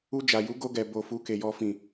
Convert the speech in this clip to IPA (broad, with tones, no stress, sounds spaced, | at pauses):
u˧ d͡ʒ a˨ j u˨˦ ɡ o˧ ɡ ɛ˨ b o˨ f u˨˦ k e˧ j ɔ˦ f ĩ˦˨